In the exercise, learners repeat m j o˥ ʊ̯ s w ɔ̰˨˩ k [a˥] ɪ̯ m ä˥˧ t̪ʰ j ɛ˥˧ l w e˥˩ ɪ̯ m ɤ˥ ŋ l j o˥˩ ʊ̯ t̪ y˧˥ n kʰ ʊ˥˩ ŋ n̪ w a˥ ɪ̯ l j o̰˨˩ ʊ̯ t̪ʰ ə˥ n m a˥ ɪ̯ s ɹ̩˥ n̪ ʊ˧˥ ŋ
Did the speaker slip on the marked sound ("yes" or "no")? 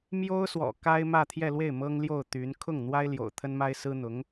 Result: no